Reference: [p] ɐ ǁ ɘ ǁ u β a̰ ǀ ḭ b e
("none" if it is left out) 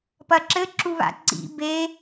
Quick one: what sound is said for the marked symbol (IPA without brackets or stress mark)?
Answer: p